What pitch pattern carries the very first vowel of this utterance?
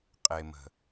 low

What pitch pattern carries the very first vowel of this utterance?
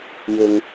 low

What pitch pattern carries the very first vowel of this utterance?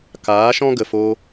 rising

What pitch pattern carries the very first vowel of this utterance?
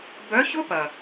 rising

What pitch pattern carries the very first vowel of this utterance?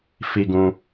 high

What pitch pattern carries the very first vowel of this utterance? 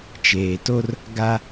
low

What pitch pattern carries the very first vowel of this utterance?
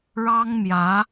high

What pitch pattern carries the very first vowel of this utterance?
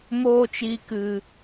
high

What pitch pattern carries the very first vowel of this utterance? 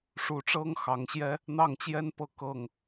rising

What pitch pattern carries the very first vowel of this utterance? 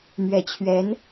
low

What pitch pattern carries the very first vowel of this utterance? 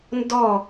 falling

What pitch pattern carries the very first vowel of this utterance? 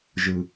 low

